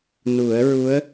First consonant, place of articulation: alveolar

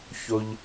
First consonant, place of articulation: palatal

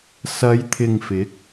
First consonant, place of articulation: alveolar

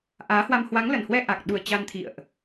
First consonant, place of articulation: glottal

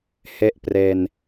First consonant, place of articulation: glottal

